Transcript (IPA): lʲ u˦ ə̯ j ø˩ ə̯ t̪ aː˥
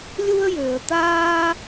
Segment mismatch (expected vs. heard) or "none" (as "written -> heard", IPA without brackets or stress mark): none